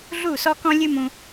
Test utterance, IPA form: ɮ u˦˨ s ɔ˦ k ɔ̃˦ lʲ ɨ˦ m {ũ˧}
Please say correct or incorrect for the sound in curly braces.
correct